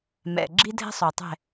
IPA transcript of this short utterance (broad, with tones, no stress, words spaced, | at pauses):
mɛ̰˩ɡ͡ǁi˥dʱɛ̤˥sˤo˩ tˤɛ̤˥˩